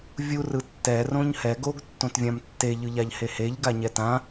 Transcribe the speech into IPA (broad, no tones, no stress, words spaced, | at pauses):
vʲu rɯtːɛ rõɲhɛ ɡoɡ tːõtvʲãmtːe ʎɯʎaʎheheʎ ɡaɲɛtã